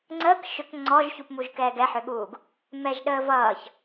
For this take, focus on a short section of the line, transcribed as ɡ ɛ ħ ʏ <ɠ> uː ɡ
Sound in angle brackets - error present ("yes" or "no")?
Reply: no